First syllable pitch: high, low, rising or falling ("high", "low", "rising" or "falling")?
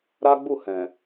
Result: high